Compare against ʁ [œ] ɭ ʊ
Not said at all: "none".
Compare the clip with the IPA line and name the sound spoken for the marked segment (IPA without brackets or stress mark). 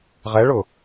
ɛ